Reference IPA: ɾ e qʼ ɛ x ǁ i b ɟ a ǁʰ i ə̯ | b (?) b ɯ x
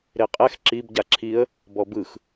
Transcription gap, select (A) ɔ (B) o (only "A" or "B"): A